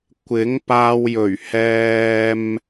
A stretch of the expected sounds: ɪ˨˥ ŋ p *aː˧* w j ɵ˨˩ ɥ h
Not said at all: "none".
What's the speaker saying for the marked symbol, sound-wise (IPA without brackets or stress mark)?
aː˧